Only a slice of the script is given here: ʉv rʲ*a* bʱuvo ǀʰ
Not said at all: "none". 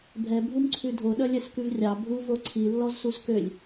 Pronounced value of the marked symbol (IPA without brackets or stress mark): ɑ